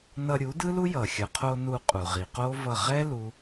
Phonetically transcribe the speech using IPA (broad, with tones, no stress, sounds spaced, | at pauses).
n ʌ˧ ɾʲ u˩˥ d ɯ˥ l u˥ j ʌ˩ xʲ ʌ˩ qʰ o˧ n u˧ qʼ u˩ ʁ i˩ q o˥ v ʌ˥˩ ʁ ɛ˥ l u˧